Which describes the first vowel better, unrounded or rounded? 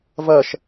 unrounded